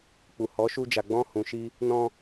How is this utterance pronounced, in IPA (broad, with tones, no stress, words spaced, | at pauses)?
k͡pu˨ hɔ˨˦ʃu˧ d͡ʒa˨ɡ͡bɔ̃˧ hũ˨ʃi˧ | nɔ̃˧